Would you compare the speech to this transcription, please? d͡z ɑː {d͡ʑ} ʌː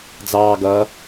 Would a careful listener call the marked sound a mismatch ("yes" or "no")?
yes